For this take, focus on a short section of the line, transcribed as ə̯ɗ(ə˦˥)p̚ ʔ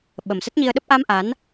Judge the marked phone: correct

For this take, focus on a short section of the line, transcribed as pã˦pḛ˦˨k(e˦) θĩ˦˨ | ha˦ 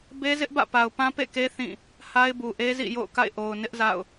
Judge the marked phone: correct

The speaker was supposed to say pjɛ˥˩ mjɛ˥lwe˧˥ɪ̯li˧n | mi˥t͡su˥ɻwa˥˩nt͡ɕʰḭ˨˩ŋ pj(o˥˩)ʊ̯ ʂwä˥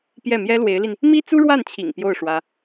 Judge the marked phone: correct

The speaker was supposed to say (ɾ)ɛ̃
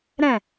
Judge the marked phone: correct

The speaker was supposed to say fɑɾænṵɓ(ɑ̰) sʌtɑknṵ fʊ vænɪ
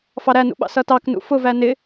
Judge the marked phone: correct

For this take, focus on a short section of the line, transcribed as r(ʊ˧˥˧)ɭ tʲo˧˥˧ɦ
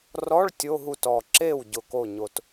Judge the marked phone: incorrect: ɔ˧˥˧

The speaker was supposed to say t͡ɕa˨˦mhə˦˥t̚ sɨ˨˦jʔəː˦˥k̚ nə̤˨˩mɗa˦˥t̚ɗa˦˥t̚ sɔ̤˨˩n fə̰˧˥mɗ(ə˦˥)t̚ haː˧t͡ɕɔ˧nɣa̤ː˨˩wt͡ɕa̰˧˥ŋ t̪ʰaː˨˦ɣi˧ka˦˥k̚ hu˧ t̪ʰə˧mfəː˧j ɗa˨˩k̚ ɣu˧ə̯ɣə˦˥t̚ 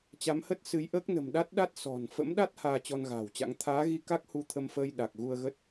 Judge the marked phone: incorrect: a˦˥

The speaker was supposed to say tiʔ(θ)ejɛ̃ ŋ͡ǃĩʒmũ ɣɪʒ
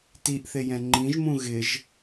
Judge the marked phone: correct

